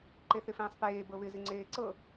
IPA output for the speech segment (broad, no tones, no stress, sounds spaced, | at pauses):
ǃ e θ ɪ f ẽː sˤ p eː b ɤ β ɪ z ɪ ŋ͡ǀ eː ǀ ɤ